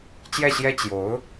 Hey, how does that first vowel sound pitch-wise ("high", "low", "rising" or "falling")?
falling